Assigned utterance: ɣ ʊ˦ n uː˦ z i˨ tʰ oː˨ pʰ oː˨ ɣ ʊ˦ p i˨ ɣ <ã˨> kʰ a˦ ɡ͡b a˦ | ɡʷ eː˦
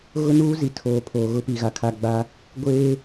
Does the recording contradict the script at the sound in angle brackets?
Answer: yes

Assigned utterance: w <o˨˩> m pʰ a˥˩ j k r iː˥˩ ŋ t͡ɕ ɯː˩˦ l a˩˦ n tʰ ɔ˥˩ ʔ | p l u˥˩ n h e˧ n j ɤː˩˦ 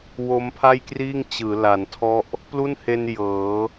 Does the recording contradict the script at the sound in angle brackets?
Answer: yes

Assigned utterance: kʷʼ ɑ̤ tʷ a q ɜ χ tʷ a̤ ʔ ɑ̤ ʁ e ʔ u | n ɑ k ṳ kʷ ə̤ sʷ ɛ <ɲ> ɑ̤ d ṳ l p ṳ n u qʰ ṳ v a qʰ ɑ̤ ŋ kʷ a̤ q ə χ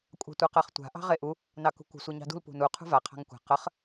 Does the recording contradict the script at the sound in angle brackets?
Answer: no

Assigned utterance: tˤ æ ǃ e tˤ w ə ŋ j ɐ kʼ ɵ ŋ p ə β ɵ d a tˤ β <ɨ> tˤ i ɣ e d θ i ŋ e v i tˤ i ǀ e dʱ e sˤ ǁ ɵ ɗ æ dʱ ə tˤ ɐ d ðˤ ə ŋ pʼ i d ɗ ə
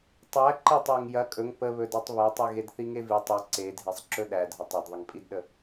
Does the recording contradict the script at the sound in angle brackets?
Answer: yes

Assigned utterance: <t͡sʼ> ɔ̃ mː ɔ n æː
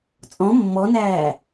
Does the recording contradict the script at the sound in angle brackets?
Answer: no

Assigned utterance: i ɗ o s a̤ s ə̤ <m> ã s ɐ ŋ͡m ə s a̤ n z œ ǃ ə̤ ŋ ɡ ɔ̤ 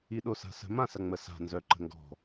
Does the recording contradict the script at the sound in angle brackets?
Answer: no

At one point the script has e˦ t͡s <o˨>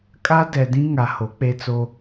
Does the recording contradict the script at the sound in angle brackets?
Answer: yes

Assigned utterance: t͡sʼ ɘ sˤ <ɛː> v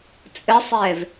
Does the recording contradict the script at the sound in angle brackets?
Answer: no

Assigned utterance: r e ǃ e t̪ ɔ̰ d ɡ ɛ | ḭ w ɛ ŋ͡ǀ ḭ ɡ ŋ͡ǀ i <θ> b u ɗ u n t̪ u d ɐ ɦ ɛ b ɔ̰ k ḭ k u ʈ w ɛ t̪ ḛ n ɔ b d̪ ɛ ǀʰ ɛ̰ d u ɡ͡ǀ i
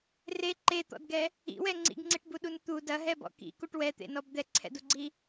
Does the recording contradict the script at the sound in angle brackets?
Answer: yes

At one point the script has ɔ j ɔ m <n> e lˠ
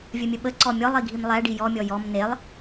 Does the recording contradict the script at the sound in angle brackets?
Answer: no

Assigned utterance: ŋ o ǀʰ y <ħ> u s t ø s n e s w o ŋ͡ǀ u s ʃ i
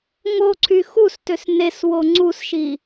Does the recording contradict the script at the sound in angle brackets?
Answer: yes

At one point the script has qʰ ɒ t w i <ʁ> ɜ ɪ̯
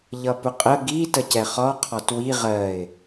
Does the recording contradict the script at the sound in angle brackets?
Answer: no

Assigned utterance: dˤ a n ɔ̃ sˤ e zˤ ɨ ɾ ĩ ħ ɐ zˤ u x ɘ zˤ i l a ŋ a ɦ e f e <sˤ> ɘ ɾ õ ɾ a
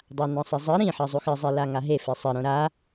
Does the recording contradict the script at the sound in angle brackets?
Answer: no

